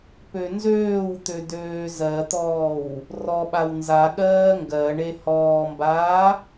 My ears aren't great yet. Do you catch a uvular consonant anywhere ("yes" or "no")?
no